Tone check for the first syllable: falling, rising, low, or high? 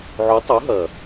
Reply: rising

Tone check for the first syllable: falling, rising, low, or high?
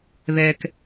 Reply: low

